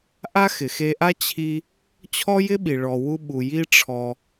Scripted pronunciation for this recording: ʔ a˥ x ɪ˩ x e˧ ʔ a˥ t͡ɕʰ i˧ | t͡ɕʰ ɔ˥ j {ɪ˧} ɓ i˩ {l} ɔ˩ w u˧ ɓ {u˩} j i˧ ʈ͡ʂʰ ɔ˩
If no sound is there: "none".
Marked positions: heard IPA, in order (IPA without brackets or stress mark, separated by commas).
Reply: ɪ˥, ɭ, u˩